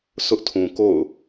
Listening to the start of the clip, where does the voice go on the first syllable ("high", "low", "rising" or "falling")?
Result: high